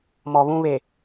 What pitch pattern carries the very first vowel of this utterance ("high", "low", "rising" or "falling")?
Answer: low